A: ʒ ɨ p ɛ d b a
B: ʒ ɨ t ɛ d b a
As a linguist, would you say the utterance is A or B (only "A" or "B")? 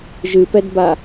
A